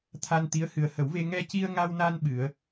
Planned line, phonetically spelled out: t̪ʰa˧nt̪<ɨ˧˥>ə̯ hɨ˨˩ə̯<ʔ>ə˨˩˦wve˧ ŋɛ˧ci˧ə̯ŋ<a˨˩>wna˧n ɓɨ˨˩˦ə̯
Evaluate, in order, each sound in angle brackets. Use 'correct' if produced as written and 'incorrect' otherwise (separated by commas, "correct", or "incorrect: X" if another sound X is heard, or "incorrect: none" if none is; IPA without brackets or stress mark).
incorrect: i˧˥, incorrect: h, incorrect: a˧